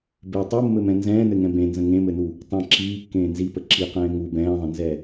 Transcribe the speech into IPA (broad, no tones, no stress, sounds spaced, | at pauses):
b e tˤ u mː ɘ m ɛ̃ n z ɛ̃ː n ɘ ŋ ɛ̃ b ẽ n z ə̃ ŋ ẽ m ɘ n u | tˤ ẽ ǁ iː kː ẽː n z i p ə ǁ i q ɛ̃ː ŋ u b ɛ̃ː ðˤ ə̃ n z ɛ